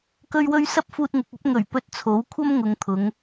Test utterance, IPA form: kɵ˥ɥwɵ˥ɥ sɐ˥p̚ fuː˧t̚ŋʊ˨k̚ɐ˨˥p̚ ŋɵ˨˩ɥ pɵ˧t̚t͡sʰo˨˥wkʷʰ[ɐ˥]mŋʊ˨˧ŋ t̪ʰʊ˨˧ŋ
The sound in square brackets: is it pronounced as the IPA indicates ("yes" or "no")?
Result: yes